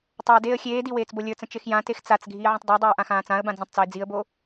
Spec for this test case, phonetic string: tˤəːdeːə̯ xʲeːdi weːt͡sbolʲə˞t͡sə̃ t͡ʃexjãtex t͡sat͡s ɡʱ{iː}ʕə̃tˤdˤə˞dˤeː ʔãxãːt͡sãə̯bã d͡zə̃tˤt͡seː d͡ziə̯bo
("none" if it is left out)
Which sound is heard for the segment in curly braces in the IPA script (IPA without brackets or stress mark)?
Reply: iː